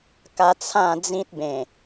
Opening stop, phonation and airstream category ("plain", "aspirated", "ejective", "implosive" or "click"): plain